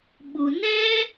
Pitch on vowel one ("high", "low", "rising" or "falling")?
low